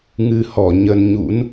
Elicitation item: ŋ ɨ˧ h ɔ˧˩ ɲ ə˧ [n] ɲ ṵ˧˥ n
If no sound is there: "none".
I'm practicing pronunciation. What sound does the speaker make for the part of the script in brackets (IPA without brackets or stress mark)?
n